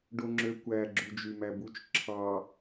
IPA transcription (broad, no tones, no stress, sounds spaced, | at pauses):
ɖ o ŋ͡ǁ ø kʷ æ ɡ͡ǁ u d͡ʒ y m æ b u t͡ʃ ǁʰ ɑ